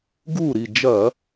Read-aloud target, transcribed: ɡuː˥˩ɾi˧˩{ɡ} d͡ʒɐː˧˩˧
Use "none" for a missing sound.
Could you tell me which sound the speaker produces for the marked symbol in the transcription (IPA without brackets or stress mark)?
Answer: none